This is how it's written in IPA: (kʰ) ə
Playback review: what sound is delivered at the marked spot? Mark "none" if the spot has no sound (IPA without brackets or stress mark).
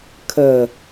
kʰ